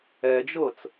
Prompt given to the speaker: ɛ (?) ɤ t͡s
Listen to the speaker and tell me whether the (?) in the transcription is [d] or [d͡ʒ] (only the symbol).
d͡ʒ